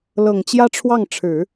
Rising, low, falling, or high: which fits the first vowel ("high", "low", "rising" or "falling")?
low